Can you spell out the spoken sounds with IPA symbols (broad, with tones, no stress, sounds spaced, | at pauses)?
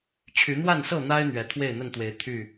t͡ɕʰ y˨˦ n̪ w a˥˨ n s ɤ˥˨ n̪ a˦ ɪ̯ n̪ ɥ ɛ˨˦ t̪ʰ w e˥˨ ɪ̯ n̪ ə˥˨ n t̪ w e˨˦ ɪ̯ t̪ʰ y˥˨